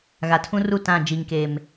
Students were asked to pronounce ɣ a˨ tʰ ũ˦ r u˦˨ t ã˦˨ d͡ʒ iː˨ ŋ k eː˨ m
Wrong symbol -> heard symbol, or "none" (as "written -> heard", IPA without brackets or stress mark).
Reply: none